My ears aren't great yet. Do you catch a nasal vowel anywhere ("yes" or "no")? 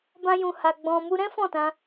yes